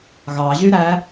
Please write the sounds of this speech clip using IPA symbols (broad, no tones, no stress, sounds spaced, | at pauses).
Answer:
ɣ ɑ ʑ y ɾ æ